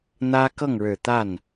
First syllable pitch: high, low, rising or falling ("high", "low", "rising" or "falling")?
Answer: high